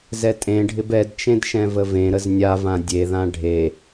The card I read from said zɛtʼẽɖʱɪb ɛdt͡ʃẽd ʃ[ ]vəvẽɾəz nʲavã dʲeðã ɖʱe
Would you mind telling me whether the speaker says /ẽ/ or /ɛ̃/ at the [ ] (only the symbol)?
ɛ̃